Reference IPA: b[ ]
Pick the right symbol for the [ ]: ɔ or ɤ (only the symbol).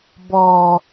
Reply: ɔ